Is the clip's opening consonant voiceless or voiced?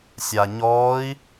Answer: voiceless